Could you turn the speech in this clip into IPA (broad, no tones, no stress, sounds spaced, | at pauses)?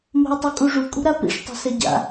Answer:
m o̤ ə̯ tˤ u kʼ u ʐ u kʼ ṳ ɾ a p ḭ ʂ tˤ ɛ̤ s ɛ ɟ a̰